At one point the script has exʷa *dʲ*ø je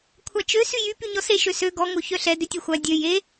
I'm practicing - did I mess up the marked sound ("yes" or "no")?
no